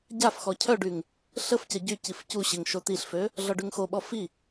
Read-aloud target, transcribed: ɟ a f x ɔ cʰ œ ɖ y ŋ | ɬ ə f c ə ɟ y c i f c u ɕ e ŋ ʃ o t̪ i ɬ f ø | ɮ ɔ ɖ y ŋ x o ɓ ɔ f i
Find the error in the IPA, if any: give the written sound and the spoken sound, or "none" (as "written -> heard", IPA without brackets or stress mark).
none